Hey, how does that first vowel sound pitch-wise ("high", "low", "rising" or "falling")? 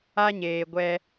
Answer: high